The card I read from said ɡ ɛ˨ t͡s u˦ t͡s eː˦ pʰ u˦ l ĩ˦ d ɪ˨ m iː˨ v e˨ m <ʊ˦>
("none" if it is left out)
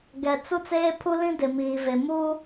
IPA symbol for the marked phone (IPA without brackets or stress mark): u˦